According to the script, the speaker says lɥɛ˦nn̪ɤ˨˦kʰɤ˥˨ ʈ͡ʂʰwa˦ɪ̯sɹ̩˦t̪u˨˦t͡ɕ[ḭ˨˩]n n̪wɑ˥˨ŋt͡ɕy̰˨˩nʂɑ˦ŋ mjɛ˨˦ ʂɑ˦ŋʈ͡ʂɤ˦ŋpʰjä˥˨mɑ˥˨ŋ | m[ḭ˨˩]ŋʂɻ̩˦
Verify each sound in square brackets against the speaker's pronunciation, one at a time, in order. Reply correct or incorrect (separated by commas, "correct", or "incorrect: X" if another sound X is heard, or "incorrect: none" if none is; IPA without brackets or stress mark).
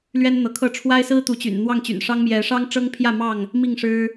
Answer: incorrect: y̰˨˩, incorrect: i˥˨